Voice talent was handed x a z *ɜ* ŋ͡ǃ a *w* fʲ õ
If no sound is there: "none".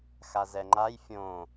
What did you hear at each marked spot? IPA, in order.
ɛ, j

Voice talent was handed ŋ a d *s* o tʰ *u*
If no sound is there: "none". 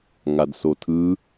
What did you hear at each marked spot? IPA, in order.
s, ɯ

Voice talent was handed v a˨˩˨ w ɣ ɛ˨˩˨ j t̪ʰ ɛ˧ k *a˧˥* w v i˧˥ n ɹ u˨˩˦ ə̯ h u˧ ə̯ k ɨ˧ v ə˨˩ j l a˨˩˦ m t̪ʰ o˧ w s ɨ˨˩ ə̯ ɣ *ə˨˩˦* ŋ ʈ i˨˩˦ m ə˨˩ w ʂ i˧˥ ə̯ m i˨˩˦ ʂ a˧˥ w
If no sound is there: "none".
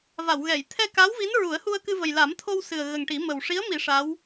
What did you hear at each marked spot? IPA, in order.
a˧˥, ə˨˩

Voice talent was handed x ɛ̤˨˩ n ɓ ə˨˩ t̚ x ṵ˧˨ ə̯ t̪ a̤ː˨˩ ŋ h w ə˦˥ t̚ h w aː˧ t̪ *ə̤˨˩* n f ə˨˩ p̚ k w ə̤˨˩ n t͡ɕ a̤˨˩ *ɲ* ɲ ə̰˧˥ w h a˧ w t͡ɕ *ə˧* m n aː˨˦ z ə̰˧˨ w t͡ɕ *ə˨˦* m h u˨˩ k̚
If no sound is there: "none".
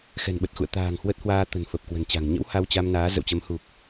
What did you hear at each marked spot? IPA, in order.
ə̤˨˩, ŋ, a˧, ə˨˦

